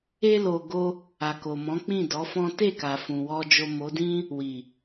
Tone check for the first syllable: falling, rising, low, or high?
high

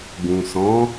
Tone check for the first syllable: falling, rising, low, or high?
low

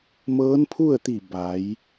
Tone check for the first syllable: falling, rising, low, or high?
rising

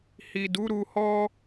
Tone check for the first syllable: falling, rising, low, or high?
low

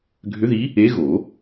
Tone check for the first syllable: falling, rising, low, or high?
rising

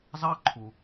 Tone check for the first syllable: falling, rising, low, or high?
high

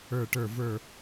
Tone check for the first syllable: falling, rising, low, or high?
falling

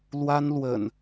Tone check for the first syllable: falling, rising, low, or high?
high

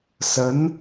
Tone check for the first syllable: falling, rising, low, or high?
rising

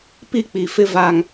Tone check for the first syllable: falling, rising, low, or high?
falling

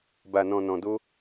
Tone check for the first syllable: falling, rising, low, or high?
low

